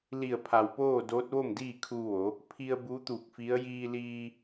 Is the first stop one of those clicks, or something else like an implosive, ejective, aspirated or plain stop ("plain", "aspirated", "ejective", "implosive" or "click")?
aspirated